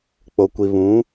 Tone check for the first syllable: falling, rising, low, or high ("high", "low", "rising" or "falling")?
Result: low